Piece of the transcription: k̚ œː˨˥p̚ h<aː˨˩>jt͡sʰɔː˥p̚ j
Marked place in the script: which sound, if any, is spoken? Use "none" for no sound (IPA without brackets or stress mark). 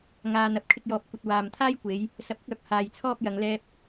aː˧